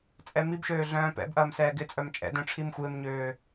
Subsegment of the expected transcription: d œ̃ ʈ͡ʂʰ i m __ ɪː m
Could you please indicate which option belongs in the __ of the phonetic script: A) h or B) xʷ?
B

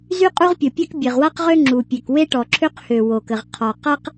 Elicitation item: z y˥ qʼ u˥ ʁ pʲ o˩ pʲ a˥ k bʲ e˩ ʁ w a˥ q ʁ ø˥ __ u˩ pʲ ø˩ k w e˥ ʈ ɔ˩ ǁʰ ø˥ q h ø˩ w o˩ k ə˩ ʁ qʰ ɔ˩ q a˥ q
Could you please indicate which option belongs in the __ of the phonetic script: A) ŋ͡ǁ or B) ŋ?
A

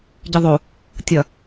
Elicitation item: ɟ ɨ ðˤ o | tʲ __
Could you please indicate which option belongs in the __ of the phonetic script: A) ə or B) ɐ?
B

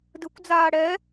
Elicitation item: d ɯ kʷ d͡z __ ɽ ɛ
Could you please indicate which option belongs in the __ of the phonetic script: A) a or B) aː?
B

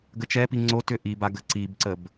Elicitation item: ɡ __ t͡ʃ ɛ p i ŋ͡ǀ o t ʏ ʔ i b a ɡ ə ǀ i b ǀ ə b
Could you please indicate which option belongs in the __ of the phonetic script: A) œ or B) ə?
B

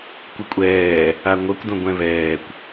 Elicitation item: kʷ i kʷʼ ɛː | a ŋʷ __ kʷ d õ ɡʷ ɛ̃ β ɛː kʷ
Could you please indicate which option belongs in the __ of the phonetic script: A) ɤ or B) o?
A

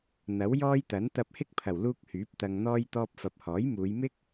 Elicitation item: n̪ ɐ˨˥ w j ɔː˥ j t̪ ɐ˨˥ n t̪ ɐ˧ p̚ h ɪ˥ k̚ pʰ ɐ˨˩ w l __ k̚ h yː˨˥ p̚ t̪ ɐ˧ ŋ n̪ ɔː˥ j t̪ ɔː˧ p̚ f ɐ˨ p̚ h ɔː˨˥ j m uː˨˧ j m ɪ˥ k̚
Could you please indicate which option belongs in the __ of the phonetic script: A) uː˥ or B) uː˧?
B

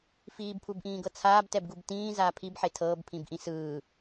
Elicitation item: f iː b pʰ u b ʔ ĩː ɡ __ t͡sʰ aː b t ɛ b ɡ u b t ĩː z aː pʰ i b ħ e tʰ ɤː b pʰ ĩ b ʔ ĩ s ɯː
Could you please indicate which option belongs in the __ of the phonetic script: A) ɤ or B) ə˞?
A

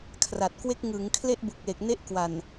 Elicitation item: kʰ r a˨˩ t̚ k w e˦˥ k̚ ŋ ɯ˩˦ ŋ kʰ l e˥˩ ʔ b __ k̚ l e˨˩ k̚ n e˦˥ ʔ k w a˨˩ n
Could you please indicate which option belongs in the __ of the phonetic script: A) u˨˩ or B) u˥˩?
A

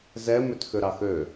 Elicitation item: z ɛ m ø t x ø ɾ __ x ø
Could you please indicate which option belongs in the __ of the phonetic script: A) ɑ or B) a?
A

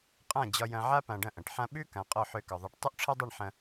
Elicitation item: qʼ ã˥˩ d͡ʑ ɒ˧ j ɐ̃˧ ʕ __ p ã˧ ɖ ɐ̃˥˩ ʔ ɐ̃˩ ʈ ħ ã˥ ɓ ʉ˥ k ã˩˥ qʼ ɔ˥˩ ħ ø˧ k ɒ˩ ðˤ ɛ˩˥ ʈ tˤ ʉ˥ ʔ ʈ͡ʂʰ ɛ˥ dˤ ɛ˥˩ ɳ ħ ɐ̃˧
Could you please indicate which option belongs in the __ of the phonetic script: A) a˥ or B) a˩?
A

